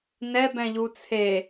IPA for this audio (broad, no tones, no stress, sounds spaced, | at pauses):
n ɛ b ɛ̃ ʎ u t͡sʰ e